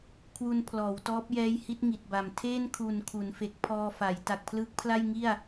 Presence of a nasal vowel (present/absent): absent